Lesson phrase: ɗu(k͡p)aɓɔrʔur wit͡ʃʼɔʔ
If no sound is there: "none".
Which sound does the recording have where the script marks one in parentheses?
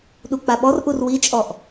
k͡p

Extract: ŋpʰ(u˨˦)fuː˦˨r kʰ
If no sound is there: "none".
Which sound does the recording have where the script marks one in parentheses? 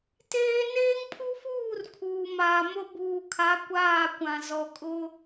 u˦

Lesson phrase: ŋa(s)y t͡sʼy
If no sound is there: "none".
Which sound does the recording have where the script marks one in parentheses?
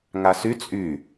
s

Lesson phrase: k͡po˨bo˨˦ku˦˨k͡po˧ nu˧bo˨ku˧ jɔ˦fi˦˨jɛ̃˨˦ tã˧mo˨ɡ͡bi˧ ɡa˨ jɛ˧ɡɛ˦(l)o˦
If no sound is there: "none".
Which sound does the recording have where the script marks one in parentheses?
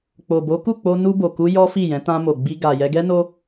n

